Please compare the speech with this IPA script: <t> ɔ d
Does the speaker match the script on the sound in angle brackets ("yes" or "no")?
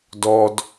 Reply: no